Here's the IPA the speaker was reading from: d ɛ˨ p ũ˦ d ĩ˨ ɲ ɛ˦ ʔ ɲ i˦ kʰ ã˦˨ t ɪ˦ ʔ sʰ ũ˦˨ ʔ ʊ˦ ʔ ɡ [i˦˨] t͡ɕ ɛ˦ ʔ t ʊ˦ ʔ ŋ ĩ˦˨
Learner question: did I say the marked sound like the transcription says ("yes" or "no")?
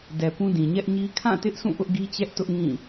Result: no